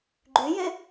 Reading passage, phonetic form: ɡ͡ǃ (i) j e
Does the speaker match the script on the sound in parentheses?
no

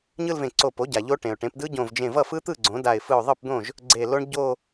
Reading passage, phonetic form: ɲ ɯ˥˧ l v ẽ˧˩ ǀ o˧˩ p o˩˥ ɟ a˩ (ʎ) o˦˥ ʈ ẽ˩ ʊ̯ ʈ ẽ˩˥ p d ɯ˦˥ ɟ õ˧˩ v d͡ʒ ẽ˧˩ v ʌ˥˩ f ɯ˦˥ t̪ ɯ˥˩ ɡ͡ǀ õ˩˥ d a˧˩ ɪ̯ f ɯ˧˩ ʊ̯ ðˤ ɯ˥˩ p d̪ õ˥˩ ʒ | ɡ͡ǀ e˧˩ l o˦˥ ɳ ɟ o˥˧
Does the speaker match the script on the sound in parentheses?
yes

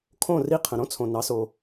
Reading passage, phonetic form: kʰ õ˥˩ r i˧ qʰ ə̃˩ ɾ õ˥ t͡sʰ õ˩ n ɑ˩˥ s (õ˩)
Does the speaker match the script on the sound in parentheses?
no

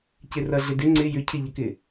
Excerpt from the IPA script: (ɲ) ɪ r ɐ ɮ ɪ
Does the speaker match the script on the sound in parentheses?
no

